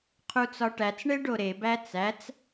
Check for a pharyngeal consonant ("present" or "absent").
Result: absent